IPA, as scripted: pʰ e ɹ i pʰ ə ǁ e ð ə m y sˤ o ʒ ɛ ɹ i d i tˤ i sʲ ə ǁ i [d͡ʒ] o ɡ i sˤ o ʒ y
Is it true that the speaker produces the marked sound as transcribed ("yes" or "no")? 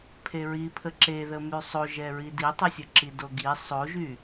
no